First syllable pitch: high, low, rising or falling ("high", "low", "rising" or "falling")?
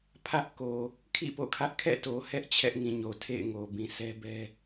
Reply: high